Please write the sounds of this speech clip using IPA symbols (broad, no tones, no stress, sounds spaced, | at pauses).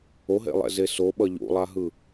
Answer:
o ɦ ḛ lˠ ɛ̰ z e s o ɓ ʌ ʎ ṵ lˠ a ɦ ɯ